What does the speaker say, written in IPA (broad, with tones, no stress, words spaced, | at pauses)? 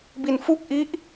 bi˧nfu˥˩k̚ ʔi˦˥ʔ